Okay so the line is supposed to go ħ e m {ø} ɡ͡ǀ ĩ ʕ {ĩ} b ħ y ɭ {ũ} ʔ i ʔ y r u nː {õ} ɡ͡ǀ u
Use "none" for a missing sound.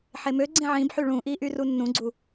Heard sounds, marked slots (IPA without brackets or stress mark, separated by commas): ø, ĩ, ũ, ũ